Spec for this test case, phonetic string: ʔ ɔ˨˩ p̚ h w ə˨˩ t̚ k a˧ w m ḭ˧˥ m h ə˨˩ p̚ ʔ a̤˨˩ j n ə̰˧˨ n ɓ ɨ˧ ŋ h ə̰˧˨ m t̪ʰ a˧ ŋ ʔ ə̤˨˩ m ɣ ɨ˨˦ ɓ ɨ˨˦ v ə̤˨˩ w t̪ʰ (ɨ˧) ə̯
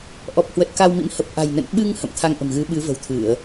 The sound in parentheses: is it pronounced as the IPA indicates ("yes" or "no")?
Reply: no